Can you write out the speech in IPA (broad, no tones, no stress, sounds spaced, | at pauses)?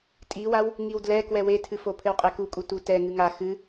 tʼ i w a w | ŋ i w d l ɛ k w ɛ w e tʰ ɨ f o pʰ ɘ w qʼ ɛ k u kʼ u t u t ɛ ŋ ɨ ŋ a x ɨ